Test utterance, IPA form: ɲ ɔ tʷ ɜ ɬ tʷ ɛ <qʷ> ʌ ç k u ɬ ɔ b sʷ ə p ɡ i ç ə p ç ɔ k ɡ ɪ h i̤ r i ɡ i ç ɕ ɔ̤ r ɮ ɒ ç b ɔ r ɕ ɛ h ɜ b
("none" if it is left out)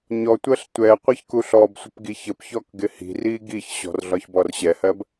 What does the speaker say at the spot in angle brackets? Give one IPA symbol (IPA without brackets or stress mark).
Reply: qʷ